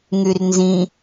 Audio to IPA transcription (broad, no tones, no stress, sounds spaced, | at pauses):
ŋ y r n z ĩ